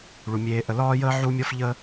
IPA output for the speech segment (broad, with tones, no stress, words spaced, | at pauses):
ɭu˩mʲeː˨ʔə˨ lɒː˥jəː˥ʕu˦ mʲɔ˥fʎə˥